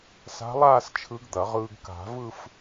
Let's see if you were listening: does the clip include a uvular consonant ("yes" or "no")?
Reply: yes